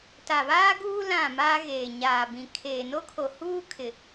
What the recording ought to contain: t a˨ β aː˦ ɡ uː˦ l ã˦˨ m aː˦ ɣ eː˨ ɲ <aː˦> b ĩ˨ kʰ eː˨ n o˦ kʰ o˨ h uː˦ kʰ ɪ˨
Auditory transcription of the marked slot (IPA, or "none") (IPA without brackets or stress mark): aː˨